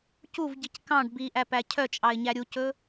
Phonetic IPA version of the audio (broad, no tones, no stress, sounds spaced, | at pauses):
c u v ɟ i c k ɑ̃ ɖ b i ʔ æ p æ cʰ œ t͡ʃʼ ɑ ɪ̯ ɲ æ ɾʲ u c ɵ